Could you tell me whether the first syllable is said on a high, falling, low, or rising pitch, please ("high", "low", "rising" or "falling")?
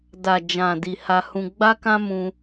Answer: low